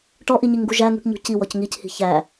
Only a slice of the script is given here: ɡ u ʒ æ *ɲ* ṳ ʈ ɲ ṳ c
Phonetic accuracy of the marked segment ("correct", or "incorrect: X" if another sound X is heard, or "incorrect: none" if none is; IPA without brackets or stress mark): incorrect: ŋ